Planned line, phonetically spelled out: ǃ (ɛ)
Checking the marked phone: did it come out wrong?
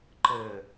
yes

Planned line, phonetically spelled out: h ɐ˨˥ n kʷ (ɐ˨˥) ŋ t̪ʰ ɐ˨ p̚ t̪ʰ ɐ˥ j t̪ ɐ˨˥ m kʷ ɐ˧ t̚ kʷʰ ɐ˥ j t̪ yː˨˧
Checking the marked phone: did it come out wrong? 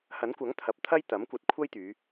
no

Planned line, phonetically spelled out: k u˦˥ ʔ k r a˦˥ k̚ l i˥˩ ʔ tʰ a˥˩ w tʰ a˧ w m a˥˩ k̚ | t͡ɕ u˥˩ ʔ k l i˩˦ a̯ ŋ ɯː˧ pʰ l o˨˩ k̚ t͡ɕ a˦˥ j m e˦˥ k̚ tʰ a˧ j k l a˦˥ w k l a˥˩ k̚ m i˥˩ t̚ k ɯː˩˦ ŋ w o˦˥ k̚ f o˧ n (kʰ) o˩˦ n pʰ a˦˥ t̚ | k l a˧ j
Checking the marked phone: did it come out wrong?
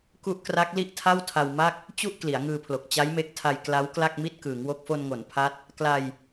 yes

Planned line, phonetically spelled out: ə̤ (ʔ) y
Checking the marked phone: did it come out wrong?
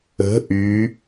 no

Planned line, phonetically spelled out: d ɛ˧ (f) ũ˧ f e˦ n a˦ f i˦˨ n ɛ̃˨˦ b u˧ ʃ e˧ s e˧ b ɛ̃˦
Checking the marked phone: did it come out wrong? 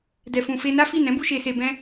no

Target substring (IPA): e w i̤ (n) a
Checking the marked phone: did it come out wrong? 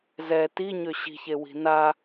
no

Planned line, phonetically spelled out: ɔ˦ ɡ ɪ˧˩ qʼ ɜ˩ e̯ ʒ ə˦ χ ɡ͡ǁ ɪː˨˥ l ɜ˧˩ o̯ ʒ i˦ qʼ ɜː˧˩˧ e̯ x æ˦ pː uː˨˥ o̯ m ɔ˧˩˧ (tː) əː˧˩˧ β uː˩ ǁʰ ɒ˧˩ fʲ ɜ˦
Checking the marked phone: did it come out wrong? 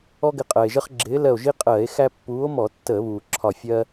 no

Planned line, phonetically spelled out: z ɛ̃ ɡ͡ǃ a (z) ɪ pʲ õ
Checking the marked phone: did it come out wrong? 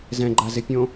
no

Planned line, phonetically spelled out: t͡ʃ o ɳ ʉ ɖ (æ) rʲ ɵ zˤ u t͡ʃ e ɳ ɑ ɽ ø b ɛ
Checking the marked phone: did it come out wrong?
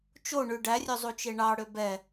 no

